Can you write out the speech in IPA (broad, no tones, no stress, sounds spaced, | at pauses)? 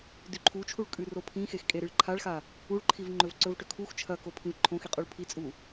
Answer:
d ʉ ǃʰ u t͡ʃʰ u ɭ kʼ ʉ r o pʰ ĩ x e x kʼ e ɾ ɨ ɭ ǃʰ a ɭ x a | u ɭ ǃʰ i v ŋ͡ǃ ɵ v ǀ ɵ v ʈ ɵ kʰ u x t͡ʃʰ ɐ k o pʰ ĩ v ǃʰ õ x i qʼ u ɭ pʰ i t͡sʼ u